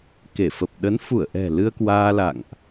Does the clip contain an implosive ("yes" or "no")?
yes